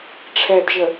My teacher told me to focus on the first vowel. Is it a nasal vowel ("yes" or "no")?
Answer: no